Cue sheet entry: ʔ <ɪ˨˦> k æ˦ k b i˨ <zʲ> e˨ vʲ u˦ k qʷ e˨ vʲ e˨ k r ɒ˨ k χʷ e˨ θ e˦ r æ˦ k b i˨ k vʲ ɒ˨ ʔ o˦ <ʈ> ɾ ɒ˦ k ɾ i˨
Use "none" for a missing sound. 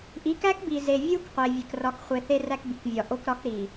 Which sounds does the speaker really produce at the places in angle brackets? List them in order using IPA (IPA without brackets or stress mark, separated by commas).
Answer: i˨˦, z, k